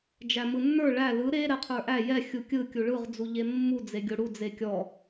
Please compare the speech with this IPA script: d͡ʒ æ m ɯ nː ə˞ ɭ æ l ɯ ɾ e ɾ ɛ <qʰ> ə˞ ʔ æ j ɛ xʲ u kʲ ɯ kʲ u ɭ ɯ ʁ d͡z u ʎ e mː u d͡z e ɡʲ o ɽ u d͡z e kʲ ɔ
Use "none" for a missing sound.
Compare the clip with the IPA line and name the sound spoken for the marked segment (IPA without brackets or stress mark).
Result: qʰ